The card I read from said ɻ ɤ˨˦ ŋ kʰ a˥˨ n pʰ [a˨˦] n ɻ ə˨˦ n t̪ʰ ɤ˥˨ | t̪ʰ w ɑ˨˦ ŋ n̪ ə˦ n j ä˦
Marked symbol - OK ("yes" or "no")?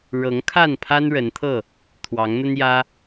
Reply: no